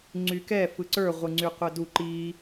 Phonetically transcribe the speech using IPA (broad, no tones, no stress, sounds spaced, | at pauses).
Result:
ŋ͡ǀ y k ɛ f ɯ ǀ ə˞ ʁʷ ɯ ŋ͡ǀ y qʷ ɘ d u ǃ i